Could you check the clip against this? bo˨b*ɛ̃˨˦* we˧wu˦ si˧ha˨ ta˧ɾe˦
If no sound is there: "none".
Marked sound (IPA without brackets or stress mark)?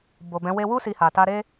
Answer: ɛ̃˨˦